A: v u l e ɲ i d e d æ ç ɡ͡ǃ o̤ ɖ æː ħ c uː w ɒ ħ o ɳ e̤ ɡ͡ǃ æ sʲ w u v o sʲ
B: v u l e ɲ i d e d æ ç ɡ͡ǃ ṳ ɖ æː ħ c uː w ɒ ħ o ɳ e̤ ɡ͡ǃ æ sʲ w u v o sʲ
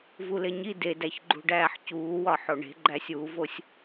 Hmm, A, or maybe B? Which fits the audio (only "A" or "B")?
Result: B